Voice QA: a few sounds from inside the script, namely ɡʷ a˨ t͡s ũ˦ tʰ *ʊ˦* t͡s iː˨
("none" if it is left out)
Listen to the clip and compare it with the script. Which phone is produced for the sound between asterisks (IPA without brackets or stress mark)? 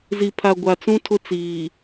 ʊ˦